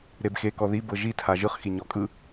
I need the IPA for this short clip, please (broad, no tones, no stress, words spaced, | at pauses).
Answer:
ɾebxe kɔði bɤʒi tʰaʒɯχ xiɲɔkʼɯ